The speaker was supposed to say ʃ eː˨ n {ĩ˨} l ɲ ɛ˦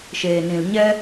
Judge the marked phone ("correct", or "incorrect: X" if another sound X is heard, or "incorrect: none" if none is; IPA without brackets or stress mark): correct